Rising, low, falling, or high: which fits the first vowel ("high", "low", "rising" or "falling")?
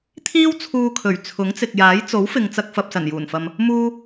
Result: high